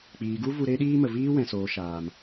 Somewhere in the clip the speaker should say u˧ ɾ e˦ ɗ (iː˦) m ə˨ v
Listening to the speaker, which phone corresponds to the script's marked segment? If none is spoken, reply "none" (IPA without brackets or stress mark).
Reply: iː˦